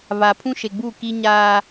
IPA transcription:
βa˨pʰũ˦ʃe˨ɡ͡bu˦˨ ki˦ɲaː˦

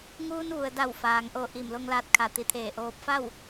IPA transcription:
ŋuː˧nʋu˩ə̯ da˧˩wfaː˩ŋʔo˧˩ ʔi˧˩mlo˧ŋlaː˧t̚ kʰa˧˩t̪i˧˩t̪ʰeː˧˩ʔoː˧p̚ fa˥˨w

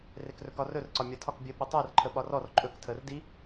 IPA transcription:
rekrɵkɒrɵr ǀɒmʲɒtʰɒk bʲə ɓɵtˤəːrǃʰə ɓɒrɔr ǃʼɵk tʰəːrdi

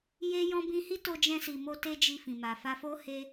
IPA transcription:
je˧jɔ̃˧ bĩ˧hi˦ to˧d͡ʒɛ̃˧si˨mo˧ te˦d͡ʒi˧fĩ˨ma˨ fa˧fo˦ he˧

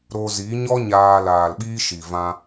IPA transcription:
ɾo˧zi˨˦ɲɔ˦ ɲaː˧laː˨lɓiː˦ʃi˨ vã˧

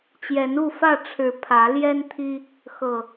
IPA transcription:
t͡ɕjɛ˨˦n u˥˨fä˥˨ʈ͡ʂʰɻ̩˨˦ pʰä˨˦ljɛ˦n t̪ʰi˦ | xɤ˨˩

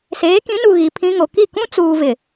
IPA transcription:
seː˨˦kĩ˨˦nu˨ ɣi˨pʰĩ˦ŋo˨ ki˦˨kũ˦t͡suː˨vɪ˨

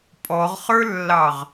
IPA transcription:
pʼɔʁχə˞lːɑʁ

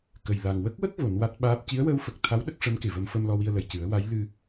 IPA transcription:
kə˨˩jla˨˩ŋ wə˦˥k̚wə˦˥k̚ vo˨˩˦nwa˦˥t̚ɓaː˦˥p̚ ci˧˥ə̯wəː˧˥wfə˨˩k̚ t̪ʰa˧˥w ɗə˦˥k̚ʂə˧˥mke˨˩ və˧mfə˧m lɔ˧wi˧ə̯lə˨˩j cɨ˨˩˦ə̯wa˧˥j lɨ˧

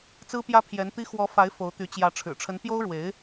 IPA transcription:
t͡sɹ̩˥pjä˥pʰjɛ˧˥n t̪i˥ xwɔ˧˥ fa˧˥ɪ̯ fo˧˥ʊ̯t̪y˧˥ t͡ɕjä˧˥ ʈ͡ʂʰɻ̩˨˩ʈ͡ʂʰə˧˥n pjo˥ʊ̯ɻwe˧˥ɪ̯

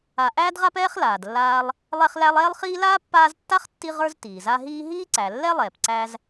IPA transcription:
a˨ʔæː˥dʁa˥pɛː˥χ laː˩dlːaː˦lˠ | lˠɛ˦χlæ˦lˠɛː˥lˠχiː˥ laː˥pːaː˦ztːa˥χtːi˦ ʁə˞˦z tiː˩za˦ɦiː˥ ɦiː˥ǀæ˩lːɛ˥lˠɛː˩p ǀæ˥z

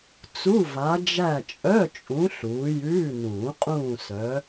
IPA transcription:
t͡su˧˥˧va˨˦ d͡ʒæ˦˨t͡ʃʼœ˧˥˧t͡ʃʼũ˨˦ ɬuː˨˦jʉː˧˥˧ nũː˨˩˦qʼũː˦˨sœ˨˦

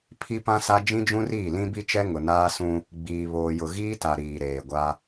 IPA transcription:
pʰi˦pã˦sa˦ d͡ʒĩ˦d͡ʒũ˦riː˦˨ lĩ˦bi˦t͡ʃɛ˦ ŋʊ˨naː˦sũ˦ | ɡ͡biː˨ βoː˨jʊ˨ɣiː˦ta˨ ɾiː˨ɾeː˨ ɡʷa˦

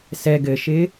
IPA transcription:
sɛ ɡɘʃɪː

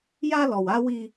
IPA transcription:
ja˦lɔ˨w a˦wi˦

